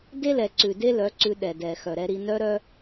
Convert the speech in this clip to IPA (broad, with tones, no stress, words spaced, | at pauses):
de˦lɛ˨ǀʉ˨ de˦lœ˨˦ ǀʉ˧ɗɛ˨dɛ˨xœ˨ ɾɛ˧ɾi˧ nœ˧ɾœ˧